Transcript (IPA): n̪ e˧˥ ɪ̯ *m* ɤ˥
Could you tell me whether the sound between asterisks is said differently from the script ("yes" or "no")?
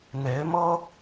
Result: no